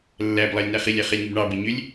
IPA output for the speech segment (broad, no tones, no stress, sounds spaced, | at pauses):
lː æ b lˠ ɑ lʲ n æ χ i lʲ æ χ e lʲ ŋ u b ɳ ɑ b e ɲ ø lʲ